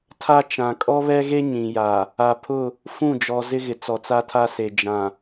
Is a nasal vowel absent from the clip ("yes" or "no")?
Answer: no